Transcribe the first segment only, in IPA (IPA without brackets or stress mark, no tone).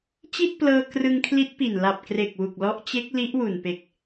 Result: t͡ɕ